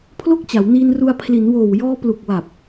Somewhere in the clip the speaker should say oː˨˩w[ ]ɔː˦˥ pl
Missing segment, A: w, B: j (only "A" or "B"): B